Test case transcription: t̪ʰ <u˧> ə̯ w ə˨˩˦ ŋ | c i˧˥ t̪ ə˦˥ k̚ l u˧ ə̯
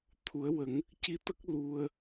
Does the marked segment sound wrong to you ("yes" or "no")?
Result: yes